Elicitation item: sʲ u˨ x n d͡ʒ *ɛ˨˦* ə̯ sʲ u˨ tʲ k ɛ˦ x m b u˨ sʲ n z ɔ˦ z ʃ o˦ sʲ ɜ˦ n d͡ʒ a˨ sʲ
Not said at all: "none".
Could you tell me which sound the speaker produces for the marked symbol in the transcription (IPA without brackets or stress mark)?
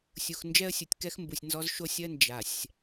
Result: ɛ˦